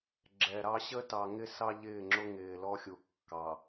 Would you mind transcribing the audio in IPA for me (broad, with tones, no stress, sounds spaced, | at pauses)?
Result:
ɡ͡ǁ ɛ˨ ɾ ɑ˦ ɕ ə˦ t ɑ˨ ŋ ɪ˦ s ɑ˦ ʎ ɪː˦˨ ŋ͡ǁ ʊ˦ ŋ ɪː˨ l ɔ˦ xʲ u˨ kː ɑ˨